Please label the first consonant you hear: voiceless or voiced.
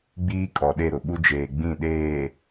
voiced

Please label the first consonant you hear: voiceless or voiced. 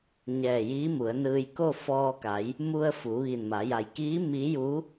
voiced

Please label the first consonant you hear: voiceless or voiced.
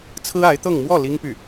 voiceless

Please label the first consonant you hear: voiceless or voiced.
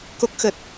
voiceless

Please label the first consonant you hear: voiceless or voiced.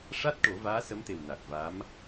voiceless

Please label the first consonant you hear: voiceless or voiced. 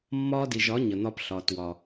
voiced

